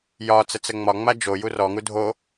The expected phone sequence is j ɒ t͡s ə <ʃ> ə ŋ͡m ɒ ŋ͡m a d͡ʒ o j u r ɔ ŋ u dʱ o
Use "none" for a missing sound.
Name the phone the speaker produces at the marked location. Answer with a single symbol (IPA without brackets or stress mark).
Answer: t͡s